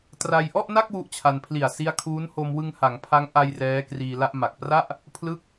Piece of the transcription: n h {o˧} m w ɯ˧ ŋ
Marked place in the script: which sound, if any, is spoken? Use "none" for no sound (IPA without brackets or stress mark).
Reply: o˧